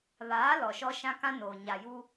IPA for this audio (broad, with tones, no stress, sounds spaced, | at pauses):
β aː˨˦ l ɔ˨ ʃ ɔ˦ ʃ ã˦ k ã˦ n oː˨ ɲ a˨ j u˦